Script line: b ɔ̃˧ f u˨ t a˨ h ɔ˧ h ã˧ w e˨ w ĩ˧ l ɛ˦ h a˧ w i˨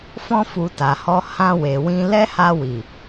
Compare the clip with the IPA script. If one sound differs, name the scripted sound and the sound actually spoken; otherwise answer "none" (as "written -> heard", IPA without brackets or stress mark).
b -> f